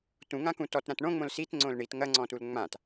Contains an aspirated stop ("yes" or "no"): no